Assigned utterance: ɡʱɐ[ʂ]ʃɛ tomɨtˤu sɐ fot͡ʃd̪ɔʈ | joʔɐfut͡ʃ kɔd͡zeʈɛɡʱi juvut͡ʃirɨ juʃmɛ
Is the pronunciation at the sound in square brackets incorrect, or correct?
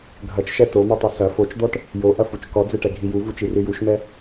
incorrect